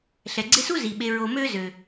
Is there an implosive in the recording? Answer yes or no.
yes